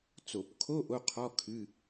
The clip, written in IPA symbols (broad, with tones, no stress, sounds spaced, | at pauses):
t͡s o˧˩˧ p kʰ o˧˥˧ ʔ o˧˥˧ qʰ ɔ˧˥˧ kʰ ɨ˧˥˧